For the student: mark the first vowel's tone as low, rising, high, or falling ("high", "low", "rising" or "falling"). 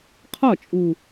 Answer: falling